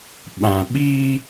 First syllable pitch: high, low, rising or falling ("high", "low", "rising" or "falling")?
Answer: low